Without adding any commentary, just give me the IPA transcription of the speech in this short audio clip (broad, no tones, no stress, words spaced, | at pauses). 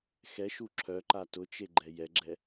xɛʃu ǁʰœǃa tʊt͡ʃe ɡ͡ǃɛjɛɡ͡ǁɛ